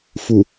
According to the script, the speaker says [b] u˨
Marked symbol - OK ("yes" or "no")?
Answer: no